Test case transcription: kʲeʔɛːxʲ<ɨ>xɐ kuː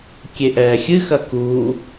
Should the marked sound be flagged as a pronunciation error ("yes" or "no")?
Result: no